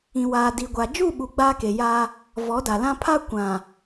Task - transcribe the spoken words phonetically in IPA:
ĩ˨ waː˨ di˨ɡʷa˨ d͡ʒu˦˨ɓu˨ ɡ͡baː˦ke˨ja˦ | vɔ˨˦da˨lã˦ pʰa˦ kʷã˨

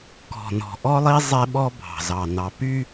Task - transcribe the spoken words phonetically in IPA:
kɔ̤˨nɔ̤˨ʔɔ˦lˠi˦ zˤe˦ɓɔ˦ bʱɑ̤˨zɑ˨ nɑ˨py˦

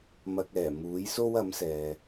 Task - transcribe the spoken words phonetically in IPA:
mɐ˨k̚ɛː˨˩ muː˨˥jso˥w ɐ˨˥msɛː˨

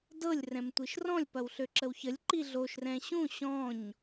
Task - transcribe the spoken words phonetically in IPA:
dɤlʲ rɛ̃mtʷiʃrɔ̃lʲ pɐwɬøǁəwçəlʲ ǃiɮoʃ rɛ̃ɕũ ɕɔ̃ɲ

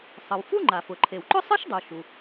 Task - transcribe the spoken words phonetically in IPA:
sˤɤ˩wfu˥ŋ͡ǃa˩fʊ˩ ǃʰe˩wǃʊ˥sˤɨ˥ʃdˤu˩ ʃu˩

